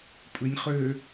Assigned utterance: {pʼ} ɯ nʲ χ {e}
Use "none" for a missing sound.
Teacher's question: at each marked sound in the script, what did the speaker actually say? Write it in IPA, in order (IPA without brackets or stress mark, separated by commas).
pʼ, ø